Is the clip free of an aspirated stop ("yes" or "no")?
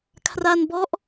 no